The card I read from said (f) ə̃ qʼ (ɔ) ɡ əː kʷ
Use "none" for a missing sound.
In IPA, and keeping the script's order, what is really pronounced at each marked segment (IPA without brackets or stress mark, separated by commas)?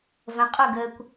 v, o